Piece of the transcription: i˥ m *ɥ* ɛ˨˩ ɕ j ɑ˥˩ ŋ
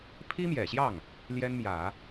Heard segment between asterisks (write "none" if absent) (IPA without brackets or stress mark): j